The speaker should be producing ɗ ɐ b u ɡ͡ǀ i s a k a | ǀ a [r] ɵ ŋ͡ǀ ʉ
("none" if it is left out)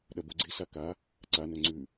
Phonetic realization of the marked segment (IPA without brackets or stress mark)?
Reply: n